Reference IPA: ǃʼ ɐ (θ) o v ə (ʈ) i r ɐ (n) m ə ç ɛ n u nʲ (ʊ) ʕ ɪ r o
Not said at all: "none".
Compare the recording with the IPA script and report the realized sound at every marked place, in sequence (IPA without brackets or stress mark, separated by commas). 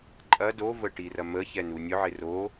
d, ʈ, none, ʊ